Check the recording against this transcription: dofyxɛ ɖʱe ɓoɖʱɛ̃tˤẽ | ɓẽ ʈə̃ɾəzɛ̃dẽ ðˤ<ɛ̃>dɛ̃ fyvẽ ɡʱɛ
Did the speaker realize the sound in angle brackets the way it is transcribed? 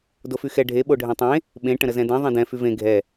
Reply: no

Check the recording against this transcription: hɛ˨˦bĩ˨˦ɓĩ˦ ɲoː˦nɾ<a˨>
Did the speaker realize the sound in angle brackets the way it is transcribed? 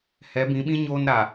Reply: yes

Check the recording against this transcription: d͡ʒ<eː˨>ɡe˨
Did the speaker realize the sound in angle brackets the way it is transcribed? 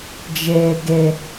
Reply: yes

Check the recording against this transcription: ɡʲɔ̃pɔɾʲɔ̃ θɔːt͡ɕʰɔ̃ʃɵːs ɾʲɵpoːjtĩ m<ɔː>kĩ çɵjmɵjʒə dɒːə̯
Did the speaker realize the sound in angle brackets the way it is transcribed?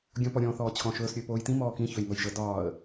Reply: yes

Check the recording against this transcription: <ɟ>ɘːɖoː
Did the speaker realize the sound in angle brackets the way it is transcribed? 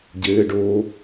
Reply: yes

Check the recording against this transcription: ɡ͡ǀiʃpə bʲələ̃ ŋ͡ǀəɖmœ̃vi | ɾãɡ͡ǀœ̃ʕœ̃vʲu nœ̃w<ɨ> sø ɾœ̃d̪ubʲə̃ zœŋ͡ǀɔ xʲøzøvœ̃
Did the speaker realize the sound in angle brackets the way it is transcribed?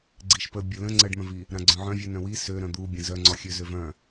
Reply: no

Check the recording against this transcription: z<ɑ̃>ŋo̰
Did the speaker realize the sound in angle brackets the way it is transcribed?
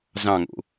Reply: yes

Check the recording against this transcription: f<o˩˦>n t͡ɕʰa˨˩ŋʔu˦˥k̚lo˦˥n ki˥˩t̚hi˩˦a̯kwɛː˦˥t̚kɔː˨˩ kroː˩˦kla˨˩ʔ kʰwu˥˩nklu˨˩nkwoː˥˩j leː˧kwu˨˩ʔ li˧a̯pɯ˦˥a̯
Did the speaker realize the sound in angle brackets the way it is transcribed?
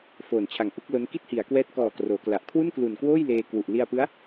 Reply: no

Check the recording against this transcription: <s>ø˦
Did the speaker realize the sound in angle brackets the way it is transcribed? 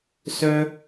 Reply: yes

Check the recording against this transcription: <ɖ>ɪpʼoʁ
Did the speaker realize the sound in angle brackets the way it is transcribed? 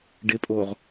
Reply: yes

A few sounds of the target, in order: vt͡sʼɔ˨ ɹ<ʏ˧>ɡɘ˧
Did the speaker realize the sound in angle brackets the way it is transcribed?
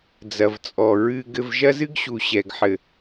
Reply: no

